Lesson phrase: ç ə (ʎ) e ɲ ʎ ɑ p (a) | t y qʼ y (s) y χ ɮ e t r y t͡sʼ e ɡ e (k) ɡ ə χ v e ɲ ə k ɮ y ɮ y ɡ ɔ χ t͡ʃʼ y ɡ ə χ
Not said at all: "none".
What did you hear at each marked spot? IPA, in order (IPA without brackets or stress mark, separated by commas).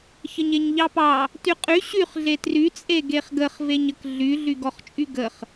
ɲ, ɑ, ɕ, χ